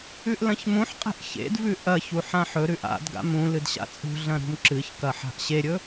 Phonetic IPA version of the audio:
ʉ ʔ l ɐ̃ ç m ũ ħ qʼ e̤ ʔ ç ḛ d v ʉ ʔ ɐ ç u ħ ã ħ ɵ ɾ ʉ ʔ a̰ d ɡ a̰ m ũ l ɨ d ɕ a̰ t͡sʼ ṳ ɮ ɐ̃ ɾ ṳ m ǁ ɨ ç k ɐ ħ a̤ ʔ ɕ e ɾʲ ɵ

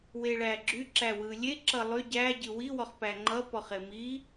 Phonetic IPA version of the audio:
w e ɭ æ ɡ͡ǁ y ǁ æ w ɯ lʲ e ǁ ʌ lˠ y ɟ æ ɟ ɯ w i w ɔ χ p æ ŋ͡ǃ ʌ p ɔ χ e m i

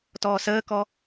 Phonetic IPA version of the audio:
t ɔː s əː k ɔ

